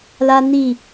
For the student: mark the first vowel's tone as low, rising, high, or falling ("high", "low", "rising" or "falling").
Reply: high